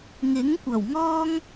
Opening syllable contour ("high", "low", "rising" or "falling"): rising